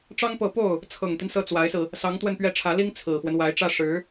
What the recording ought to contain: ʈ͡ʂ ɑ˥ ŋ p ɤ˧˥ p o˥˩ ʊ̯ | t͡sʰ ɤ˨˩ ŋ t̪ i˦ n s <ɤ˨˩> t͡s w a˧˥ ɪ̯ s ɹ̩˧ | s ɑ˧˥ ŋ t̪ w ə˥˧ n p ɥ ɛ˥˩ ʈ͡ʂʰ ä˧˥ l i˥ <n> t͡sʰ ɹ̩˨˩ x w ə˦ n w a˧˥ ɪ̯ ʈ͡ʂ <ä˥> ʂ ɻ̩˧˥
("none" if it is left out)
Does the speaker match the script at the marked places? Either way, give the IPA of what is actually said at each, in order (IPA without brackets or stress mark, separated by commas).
ɤ˥˩, ŋ, ä˥